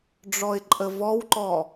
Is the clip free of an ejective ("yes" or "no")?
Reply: no